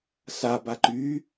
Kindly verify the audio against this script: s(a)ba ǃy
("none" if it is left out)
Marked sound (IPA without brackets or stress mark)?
a